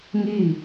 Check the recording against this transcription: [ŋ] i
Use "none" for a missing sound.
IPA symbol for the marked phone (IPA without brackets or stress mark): ŋ